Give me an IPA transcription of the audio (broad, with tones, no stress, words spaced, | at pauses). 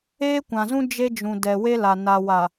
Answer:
eː˦kʷã˨zũ˦ d͡ʒe˦d͡ʒũ˨ dɛ˨we˦la˨ na˨wa˨